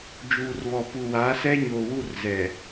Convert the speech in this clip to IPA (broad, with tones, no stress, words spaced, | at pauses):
d͡ʒuː˨rβɔ˨pu˨ wa˨˦sɛ˦ɲoː˨wu˦˨r zɛ˨